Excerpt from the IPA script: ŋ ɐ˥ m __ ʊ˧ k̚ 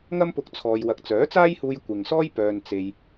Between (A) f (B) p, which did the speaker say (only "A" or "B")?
B